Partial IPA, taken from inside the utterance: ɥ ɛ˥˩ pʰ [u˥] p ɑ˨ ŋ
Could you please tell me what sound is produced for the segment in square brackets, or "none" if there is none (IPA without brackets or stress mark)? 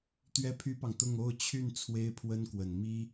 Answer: y˥